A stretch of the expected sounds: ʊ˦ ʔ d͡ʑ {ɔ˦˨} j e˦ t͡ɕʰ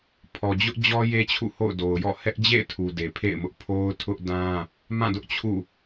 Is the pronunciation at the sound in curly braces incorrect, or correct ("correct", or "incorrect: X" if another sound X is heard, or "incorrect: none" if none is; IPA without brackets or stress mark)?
incorrect: ɔ˦